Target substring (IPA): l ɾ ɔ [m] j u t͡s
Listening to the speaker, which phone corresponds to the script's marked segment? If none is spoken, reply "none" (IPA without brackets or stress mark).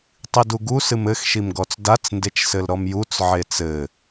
m